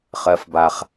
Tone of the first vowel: rising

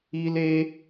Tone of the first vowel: high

